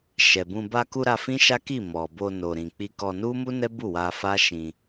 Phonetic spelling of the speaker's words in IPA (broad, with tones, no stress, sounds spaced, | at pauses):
ʃ ɛ˨ b ũ˧ b a˧ k u˧ ɾ a˧ f ĩ˦ ʃ a˦ k i˦˨ m ɔ˨ b o˧ n o˨ ɾ ĩ˨ k͡p i˧ k ɔ˧ n u˦ m u˦ n ɛ˦ b u˦˨ w a˧ f a˦ ʃ ĩ˧